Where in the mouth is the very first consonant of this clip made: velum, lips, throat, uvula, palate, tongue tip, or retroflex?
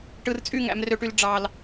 retroflex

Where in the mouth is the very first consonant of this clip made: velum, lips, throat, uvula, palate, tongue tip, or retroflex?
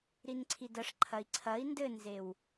tongue tip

